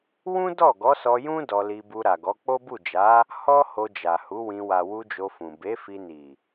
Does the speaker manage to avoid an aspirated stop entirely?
yes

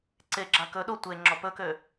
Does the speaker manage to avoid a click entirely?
no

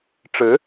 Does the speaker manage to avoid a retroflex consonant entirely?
no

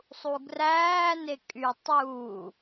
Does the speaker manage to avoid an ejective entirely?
no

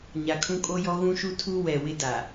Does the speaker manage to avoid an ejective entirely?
no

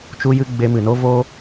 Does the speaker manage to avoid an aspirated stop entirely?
yes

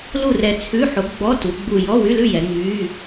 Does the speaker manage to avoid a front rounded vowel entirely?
no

